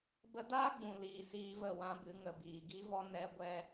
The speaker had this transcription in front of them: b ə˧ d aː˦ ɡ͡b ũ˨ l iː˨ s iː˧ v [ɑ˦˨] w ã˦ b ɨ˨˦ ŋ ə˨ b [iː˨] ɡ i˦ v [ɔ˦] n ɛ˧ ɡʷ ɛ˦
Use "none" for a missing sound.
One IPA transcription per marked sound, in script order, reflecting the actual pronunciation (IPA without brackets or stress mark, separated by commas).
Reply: ə˦˨, iː˨, ɔ˦